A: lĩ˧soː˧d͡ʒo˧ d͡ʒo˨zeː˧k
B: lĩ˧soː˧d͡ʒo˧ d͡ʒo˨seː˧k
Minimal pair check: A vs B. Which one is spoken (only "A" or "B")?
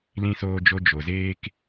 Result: A